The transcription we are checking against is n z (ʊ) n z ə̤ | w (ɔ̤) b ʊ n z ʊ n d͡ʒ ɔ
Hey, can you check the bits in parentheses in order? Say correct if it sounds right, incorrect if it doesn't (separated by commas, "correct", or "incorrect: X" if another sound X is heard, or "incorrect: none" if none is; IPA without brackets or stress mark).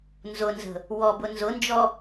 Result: correct, incorrect: ɔ